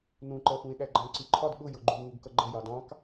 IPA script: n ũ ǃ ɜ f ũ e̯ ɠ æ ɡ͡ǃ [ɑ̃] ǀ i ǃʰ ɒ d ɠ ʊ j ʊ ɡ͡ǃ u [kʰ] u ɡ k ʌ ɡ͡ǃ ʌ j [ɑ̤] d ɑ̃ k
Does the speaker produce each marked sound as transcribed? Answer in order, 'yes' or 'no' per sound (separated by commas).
yes, no, no